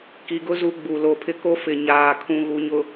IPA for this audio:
ki˨ɡʊ˦ zu˦ ɡ͡bu˨lo˨pʰɪ˦ ko˦fɪ˨ ɲaː˨kʰũ˨ ɣu˨ɲʊ˨

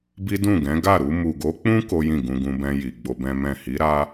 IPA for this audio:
bi˦dũ˦˨ɡɛ̃˨˦ ɡa˦˨ɾu˧ mu˨ɡo˨˦k͡pũ˦ ko˦jĩ˦˨ ɡũ˧ɡũ˧bɛ̃˧ji˨ ɡ͡bo˧bɛ̃˦ mɛ̃˦˨ hi˨˦ɾa˦

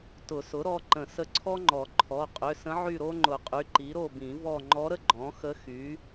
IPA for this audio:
tʊ˨˩˦sʊ˩˥ɾɔ˩˧˩ǃə̃˨˩˦ sə˧˥ǀʰɔ˥ŋ͡ǃɔ˨˩˦ ǃʰɔ˩˧˩ qʼʏ˩˧˩sə̃˧˥ʕy˦˨ ɾo˥ŋ͡ǃʊ˨˩˦qʼy˩˧˩ǃi˩˥ ɾo˦˨ bĩ˨˩˦ vɔ˦˨ ŋ͡ǃɔ˧˥ɾə˥ ɡ͡ǃɔ̃˩˥xə˧˥ xy˩˥

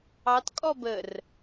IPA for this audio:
ɑtkʼɔ bər

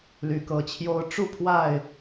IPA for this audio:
ly˨˦kɤ˨˦t͡ɕʰjo˦ʊ̯ ʈ͡ʂu˥˨ pʰwa˥˨ɪ̯

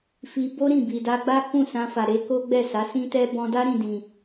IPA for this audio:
fi˧ bo˦ɾĩ˦˨bi˨ da˧ɡ͡ba˦ kũ˦˨sã˧fa˨ ɾe˧ko˦ɡ͡bɛ˦˨sa˨˦ sĩ˦tɛ˦ bɔ̃˧da˦ɾĩ˦˨dĩ˨

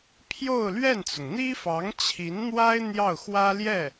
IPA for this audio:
pʰjo˥˧ʊ̯lɥɛ˥˩nt͡sʊ˩ŋ n̪i˥fɑ˧˥ŋ t͡ɕʰi˧˥nn̪wa˥ɪ̯ n̪jɑ˥˩ʊ̯xwä˥ljɛ˥˩

